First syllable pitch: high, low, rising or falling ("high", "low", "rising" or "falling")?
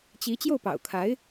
rising